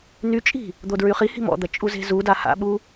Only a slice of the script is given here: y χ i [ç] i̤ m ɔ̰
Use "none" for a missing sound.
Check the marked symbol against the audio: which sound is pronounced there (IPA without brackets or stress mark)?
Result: h